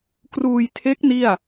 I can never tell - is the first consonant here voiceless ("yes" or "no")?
yes